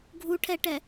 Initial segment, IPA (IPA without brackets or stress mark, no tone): ɡʱ